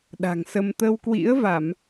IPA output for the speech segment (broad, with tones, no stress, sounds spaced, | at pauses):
ɗ a̤˨˩ ŋ s ə˧ m t̪ ə˧ w k w ḭ˧˥ ə̯ v a˧˩˨ m